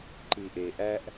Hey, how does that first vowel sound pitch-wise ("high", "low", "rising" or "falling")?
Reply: low